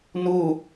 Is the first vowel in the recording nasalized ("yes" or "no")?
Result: no